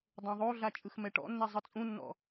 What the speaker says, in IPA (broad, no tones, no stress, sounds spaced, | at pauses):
dˤ õ ðˤ o ɮ a t͡ʃʼ ɯ x m ɛ ʈ ɔ̰ nː ɛ zˤ ɯ t͡sʼ ũ nː ɔ̰